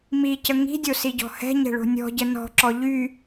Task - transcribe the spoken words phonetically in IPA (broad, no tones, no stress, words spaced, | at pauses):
micə ŋi̤dʲosiɟɔ̤ hɛ̤ɲɛ̤ɭo̤ nʲɔ̤ɟə nɔ̤ǁɔ ʎy